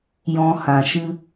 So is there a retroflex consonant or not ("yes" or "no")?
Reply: no